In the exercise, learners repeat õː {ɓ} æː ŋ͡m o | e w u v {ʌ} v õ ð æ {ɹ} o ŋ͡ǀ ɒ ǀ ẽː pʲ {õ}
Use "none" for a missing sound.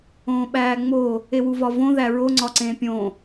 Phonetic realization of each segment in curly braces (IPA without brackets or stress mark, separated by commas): ɓ, ɒ, ɹ, õ